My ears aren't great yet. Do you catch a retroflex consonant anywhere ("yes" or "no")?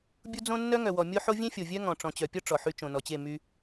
yes